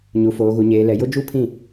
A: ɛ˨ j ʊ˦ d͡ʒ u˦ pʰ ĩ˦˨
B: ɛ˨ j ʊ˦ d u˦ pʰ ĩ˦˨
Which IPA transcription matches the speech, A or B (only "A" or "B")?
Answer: A